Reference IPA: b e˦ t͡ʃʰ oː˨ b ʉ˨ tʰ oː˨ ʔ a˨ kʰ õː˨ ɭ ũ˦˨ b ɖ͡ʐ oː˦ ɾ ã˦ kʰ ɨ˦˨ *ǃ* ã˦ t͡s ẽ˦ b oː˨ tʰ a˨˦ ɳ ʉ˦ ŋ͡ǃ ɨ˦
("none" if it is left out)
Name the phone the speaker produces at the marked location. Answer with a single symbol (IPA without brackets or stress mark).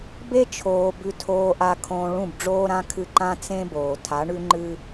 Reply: ǃ